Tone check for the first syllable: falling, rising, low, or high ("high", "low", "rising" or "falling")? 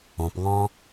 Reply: low